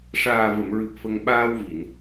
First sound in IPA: ʂ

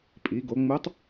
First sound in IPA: pʼ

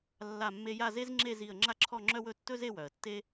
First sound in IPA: lː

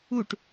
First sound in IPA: u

